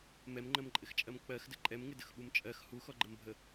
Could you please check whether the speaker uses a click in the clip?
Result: yes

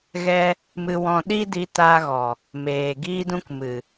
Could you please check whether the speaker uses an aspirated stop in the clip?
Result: no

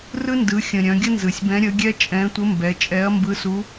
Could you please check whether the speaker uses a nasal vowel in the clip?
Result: yes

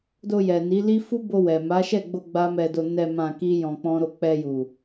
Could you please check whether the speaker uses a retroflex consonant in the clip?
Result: no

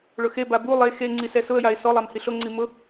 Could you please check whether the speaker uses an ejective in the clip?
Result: no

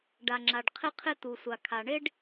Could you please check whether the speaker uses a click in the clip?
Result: yes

